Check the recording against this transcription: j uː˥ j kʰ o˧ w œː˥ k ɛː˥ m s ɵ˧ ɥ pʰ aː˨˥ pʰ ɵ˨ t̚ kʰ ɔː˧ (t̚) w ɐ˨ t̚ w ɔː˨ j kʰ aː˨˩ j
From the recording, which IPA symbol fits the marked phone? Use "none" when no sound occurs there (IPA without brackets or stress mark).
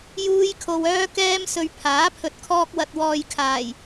k̚